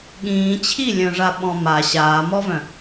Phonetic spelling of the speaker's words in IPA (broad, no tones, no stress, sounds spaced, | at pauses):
ɠ ĩː t͡ɕʰ i lʲ œ̃ ʐ a ɓ ɔ̃ m a ɕ aː m ɔ v œ̃